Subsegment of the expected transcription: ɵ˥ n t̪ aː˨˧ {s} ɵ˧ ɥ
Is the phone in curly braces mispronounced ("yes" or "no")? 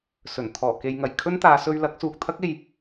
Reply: no